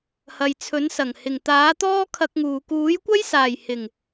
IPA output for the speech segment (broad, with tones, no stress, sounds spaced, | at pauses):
h ɐ˨ j t͡sʰ ɵ˨˥ n s ɐ˨˩ ŋ h ɪ˨˩ ŋ t̪ aː˨˥ t̪ ɔː˥ kʰ ɐ˧ k̚ ŋ uː˨ k uː˨˥ j kʷ ɐ˥ j s aː˨˩ j h ɪ˨˩ ŋ